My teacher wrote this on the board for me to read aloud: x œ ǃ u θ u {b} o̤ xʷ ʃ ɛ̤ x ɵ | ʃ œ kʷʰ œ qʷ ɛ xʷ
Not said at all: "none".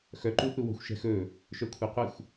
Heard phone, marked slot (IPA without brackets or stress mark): w